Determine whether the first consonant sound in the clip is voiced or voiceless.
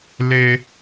voiced